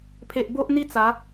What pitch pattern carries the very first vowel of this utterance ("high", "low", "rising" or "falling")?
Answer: low